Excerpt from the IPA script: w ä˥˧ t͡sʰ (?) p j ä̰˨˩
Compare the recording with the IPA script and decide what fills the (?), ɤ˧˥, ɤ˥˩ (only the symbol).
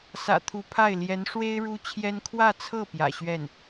ɤ˥˩